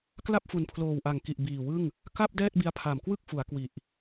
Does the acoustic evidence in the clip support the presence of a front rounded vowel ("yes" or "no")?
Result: no